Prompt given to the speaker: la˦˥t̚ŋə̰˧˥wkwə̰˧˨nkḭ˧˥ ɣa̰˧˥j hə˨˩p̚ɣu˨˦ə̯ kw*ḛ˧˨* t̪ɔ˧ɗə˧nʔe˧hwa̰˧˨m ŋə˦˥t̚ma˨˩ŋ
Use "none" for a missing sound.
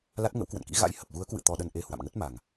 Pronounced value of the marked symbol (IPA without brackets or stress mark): ɨ̰˧˨